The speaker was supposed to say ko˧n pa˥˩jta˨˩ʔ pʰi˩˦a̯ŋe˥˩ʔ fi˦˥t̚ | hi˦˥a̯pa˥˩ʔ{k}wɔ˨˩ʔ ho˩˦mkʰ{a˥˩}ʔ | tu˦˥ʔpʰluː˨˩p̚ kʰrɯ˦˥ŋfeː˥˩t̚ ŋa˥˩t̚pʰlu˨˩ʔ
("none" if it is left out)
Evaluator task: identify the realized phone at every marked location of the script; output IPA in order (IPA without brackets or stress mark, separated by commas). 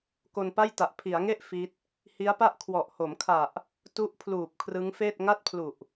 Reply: kʰ, a˨˩